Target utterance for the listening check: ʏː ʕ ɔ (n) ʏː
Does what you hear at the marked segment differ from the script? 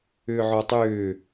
yes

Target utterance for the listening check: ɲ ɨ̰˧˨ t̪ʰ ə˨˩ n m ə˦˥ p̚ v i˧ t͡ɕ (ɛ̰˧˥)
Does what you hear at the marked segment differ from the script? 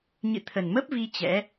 no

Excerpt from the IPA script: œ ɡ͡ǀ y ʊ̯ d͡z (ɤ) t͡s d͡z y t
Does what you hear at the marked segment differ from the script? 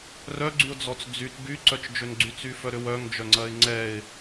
yes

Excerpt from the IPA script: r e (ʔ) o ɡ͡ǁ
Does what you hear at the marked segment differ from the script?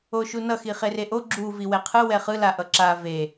no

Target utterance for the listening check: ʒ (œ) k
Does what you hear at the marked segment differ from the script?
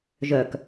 no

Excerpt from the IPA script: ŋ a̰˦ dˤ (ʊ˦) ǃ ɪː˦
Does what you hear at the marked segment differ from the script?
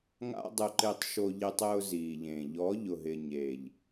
no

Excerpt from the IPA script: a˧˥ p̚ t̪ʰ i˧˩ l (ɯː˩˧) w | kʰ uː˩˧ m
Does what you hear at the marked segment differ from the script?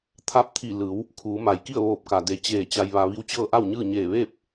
no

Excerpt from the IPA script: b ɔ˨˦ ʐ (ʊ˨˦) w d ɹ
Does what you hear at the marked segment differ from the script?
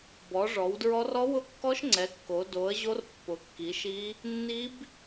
yes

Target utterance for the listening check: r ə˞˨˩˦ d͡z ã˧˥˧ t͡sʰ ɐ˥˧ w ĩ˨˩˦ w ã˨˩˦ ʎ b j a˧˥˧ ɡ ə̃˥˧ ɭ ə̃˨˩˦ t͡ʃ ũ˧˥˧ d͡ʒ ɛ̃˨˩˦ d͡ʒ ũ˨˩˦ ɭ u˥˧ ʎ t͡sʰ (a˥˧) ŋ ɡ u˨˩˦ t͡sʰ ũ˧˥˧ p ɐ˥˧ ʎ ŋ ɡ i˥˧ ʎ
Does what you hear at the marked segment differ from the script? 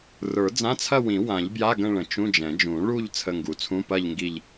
yes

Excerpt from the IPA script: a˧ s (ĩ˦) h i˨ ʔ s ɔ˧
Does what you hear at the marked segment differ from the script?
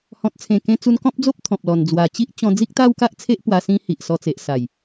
yes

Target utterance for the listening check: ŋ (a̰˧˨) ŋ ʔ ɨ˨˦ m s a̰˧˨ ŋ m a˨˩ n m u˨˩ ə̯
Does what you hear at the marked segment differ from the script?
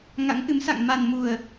yes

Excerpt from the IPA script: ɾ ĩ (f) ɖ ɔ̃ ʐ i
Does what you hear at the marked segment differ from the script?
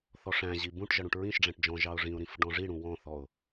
no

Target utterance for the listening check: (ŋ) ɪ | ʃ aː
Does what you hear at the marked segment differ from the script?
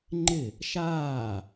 yes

